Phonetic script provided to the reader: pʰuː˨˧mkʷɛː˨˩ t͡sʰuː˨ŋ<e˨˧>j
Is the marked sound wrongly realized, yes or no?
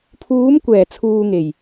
yes